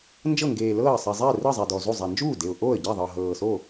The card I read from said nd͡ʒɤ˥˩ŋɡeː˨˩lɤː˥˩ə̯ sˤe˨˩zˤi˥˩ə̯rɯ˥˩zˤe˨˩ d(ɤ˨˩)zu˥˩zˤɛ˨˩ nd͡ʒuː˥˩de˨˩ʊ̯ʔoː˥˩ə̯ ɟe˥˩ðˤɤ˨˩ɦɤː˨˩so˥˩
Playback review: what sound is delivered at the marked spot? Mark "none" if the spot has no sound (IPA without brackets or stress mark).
ɔ˨˩